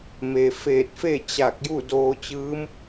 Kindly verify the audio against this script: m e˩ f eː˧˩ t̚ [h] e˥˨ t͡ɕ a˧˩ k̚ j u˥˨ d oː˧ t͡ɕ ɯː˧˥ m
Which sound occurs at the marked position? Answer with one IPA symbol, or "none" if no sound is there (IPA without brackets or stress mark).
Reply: f